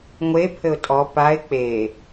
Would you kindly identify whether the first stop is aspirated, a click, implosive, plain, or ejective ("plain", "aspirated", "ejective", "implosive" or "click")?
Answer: aspirated